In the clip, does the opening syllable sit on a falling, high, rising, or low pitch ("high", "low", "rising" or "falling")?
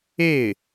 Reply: falling